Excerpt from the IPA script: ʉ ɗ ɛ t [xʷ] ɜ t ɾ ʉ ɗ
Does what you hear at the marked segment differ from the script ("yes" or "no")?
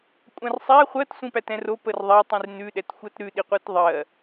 no